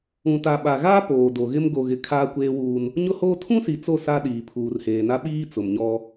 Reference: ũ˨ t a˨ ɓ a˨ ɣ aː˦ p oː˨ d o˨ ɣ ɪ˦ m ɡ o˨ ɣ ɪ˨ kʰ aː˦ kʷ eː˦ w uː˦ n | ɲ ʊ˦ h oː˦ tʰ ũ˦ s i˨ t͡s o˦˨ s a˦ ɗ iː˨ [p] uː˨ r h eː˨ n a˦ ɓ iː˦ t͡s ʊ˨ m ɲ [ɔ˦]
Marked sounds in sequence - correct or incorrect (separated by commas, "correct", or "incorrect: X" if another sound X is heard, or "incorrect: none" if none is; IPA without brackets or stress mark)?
incorrect: pʰ, correct